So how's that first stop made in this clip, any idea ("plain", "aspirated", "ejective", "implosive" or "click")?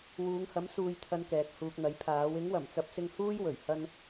aspirated